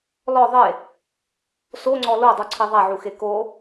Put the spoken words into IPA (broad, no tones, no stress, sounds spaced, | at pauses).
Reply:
l ɔ ðˤ e | s o ŋ͡ǀ ɔ l o dˤ u ǀʰ i ðˤ a ʕ u x e k o